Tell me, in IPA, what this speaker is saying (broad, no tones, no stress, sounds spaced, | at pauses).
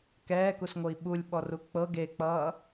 k ɛː k u s ŋʷ ɤ i̯ ɓ u lʲ ɓ ɔ r u k͡p ɤ ɡ e k͡p ʌː